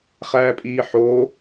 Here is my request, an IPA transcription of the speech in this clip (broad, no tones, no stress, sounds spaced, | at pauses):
χ æː pʼ iː ħ oː